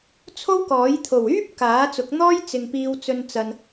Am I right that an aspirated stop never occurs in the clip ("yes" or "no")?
no